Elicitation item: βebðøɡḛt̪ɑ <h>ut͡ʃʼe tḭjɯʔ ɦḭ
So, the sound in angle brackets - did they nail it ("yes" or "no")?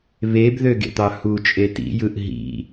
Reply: yes